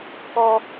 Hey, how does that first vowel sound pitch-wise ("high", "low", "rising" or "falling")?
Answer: high